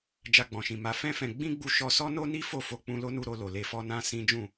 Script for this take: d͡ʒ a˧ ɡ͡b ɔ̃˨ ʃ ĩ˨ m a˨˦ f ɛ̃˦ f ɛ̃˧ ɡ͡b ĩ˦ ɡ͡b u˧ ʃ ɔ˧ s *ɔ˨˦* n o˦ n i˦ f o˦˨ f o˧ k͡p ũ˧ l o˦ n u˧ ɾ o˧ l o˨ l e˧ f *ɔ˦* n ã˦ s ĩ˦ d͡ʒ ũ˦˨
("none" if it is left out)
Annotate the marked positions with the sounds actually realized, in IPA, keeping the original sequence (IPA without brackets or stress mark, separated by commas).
ɔ˦, ɔ˦